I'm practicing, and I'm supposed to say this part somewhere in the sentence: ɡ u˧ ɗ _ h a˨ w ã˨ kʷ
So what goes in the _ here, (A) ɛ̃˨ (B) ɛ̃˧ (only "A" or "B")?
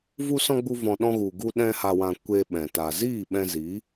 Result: B